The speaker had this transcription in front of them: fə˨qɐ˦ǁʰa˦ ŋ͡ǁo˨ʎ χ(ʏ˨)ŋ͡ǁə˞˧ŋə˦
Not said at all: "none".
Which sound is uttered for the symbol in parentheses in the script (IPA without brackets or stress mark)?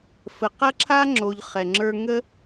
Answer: ɛ˨